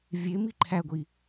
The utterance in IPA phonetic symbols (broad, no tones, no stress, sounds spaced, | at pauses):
vʲ e m i ǃʰ æ ɡʷ i